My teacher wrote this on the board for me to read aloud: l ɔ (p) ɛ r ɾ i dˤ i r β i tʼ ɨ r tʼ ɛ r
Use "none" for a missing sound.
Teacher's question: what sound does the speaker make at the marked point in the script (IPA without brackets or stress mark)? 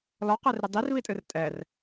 q